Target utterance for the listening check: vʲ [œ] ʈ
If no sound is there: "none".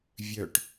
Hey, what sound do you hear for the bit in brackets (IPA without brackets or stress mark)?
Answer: œ